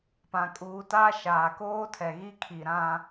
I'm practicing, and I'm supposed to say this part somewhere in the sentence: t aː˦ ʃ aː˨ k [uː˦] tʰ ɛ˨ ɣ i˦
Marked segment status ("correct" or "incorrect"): incorrect